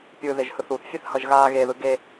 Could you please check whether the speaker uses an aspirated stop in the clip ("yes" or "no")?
no